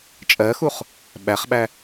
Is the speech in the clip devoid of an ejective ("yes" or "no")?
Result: no